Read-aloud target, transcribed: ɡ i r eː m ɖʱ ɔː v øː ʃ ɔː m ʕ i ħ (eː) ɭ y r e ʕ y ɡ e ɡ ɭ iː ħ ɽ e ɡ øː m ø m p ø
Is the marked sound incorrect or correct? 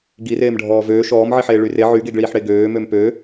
correct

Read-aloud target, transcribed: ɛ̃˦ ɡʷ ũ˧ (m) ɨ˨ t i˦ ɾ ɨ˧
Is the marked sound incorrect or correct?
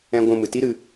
correct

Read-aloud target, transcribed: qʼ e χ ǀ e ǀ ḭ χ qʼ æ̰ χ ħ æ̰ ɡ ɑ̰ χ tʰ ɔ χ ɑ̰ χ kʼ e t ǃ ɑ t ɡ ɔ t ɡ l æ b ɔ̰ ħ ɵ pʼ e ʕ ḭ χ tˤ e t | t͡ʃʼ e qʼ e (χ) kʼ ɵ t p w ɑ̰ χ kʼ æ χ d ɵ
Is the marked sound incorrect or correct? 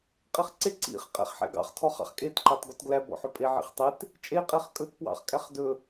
correct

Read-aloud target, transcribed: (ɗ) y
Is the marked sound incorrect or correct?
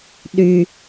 correct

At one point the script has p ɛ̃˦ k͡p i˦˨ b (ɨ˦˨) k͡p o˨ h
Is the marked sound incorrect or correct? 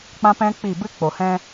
incorrect: ɨ˦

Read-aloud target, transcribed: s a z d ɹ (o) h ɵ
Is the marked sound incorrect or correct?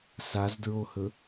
correct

